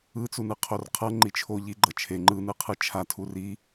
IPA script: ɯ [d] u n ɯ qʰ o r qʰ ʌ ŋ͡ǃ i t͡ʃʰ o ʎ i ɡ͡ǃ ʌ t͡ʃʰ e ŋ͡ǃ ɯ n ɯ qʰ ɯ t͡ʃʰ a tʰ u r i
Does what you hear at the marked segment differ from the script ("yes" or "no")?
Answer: yes